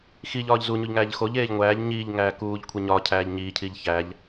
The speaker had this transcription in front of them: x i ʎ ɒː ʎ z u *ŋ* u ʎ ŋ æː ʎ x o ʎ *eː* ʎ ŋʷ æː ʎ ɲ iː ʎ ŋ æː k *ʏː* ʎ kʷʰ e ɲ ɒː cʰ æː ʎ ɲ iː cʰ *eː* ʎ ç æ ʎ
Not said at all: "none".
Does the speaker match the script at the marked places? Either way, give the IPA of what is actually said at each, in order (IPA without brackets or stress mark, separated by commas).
ɲ, eː, uː, iː